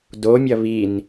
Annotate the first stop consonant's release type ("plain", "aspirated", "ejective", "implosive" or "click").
plain